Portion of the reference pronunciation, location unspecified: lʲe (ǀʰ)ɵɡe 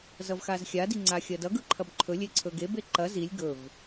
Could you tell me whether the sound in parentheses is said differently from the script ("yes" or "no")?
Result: no